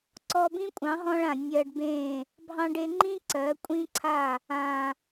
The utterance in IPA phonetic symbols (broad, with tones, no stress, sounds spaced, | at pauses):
ǀ ɔ˧ b ĩ˦ kʷʼ ɑ̃˨˦ ɦ ɔ̃˧ ɭ ã˨ nʲ ɜ˧ ɖ b ẽ˦˨ | bʱ ɑ̃˧ ɖ e˧ ŋ͡ǃ ĩ˦ ǀ ɜ˨˦ kʷʼ ĩ˦ ǀʰ a˦˨ | ã˨